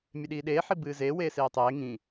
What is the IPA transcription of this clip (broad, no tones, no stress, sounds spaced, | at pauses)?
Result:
mʲ e ɗ iː ɗ eː ħ i b ɨː z eː w eː s eː tˤ eː ŋ ĩ